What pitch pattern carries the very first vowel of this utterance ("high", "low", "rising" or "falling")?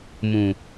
low